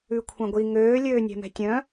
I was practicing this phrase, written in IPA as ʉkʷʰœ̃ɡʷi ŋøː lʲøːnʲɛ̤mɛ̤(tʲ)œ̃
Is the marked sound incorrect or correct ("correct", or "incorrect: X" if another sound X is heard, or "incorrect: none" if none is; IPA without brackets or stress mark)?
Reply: correct